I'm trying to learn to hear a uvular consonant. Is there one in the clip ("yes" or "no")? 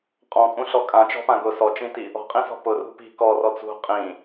yes